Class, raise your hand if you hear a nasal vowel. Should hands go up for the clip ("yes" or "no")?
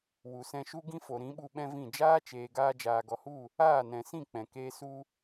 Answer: yes